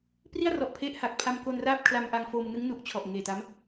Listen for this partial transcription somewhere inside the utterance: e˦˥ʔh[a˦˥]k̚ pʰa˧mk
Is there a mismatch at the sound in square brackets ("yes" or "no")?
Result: yes